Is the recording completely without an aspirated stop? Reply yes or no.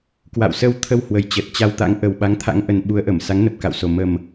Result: no